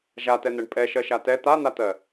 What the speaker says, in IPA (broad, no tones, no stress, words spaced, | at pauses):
ʒatɛn̪ɛɳ pʼɛʃɜʃa tɛ t̪an̪at̪ɜ